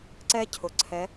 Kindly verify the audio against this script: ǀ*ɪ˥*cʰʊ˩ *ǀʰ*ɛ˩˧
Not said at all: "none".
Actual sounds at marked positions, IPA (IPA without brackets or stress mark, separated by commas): ɛ˥, ǀʰ